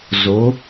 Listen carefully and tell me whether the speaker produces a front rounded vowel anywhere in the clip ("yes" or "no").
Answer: no